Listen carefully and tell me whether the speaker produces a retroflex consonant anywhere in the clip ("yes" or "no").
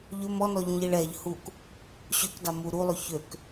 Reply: yes